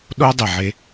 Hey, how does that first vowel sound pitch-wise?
high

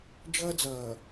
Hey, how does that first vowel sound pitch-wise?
high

